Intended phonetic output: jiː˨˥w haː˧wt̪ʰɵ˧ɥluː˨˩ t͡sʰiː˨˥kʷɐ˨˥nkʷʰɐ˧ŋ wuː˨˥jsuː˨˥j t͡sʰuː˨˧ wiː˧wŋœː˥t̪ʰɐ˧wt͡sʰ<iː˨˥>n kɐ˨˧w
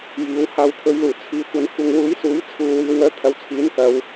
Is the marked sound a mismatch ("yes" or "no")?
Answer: no